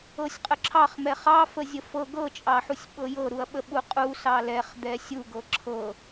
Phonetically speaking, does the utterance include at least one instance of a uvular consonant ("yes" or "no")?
yes